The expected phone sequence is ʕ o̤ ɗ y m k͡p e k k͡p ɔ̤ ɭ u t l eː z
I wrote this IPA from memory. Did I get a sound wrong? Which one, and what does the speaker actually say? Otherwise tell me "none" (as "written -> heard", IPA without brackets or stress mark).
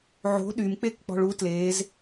none